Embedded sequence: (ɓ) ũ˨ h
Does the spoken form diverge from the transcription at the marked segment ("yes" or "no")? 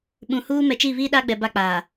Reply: no